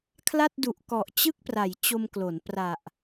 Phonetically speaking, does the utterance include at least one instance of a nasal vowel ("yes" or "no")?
no